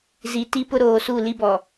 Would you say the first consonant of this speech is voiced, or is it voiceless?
voiced